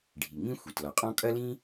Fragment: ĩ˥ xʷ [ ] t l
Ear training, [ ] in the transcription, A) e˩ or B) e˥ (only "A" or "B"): A